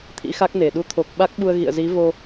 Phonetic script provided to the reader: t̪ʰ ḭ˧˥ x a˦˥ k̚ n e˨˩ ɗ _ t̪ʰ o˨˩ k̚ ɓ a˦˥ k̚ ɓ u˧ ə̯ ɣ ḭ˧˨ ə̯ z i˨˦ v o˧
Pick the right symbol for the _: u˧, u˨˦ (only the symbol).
u˨˦